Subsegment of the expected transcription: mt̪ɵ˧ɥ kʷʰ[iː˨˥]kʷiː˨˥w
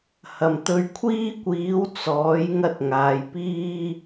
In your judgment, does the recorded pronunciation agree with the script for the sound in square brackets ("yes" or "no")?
no